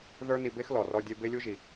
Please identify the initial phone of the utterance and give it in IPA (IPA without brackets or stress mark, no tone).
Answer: ð